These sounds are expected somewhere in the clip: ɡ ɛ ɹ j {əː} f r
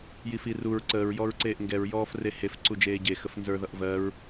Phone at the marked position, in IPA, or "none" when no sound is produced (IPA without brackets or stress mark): ɔː